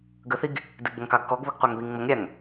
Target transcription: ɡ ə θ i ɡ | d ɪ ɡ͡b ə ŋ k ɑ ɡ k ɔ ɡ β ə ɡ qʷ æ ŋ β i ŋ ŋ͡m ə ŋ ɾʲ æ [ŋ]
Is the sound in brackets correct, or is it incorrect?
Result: correct